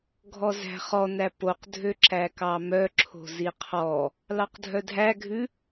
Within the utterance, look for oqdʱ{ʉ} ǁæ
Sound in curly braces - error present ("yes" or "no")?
yes